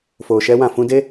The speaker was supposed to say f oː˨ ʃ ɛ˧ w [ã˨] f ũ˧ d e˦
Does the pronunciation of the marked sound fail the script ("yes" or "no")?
no